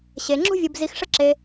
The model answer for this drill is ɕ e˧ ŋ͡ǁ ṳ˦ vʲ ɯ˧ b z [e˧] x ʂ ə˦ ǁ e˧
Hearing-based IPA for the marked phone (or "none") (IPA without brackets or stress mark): i˧